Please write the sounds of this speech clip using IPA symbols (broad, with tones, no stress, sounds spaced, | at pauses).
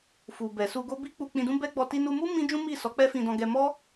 f u˨ b ɛ˨ s u˧ ɡ o˦ b i˦ k͡p u˧ k͡p ĩ˧ d ũ˦ b ɛ˦ ɡ͡b ɔ˧ t i˧ n u˧ m u˦ m ĩ˦ d͡ʒ ũ˦ m i˦˨ s ɔ˨˦ k͡p ɛ˦ f ĩ˧ d ɔ̃˧ ɡ ɛ˧ m ɔ˦